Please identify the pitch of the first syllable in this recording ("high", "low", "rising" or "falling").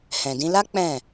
low